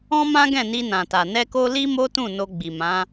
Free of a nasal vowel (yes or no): no